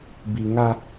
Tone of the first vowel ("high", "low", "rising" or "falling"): low